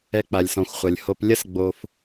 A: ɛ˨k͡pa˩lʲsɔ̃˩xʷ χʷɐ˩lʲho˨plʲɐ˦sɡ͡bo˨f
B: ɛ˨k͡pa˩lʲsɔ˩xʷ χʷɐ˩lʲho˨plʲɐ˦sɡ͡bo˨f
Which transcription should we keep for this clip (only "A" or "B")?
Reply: A